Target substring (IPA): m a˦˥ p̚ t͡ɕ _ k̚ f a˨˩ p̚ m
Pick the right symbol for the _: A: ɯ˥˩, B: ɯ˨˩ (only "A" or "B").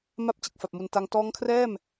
B